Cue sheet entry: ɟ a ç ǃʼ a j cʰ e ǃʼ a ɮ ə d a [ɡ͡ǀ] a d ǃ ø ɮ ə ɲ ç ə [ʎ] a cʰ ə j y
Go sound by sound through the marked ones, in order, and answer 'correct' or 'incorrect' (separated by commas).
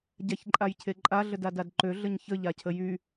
incorrect, correct